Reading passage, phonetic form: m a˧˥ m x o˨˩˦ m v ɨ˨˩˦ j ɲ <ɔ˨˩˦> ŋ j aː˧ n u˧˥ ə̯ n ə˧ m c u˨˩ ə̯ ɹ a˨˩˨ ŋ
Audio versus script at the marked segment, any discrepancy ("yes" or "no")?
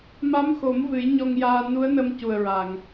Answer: yes